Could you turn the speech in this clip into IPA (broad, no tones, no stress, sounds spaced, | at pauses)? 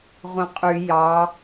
ʁʷ ẽ qʼ y j ɑ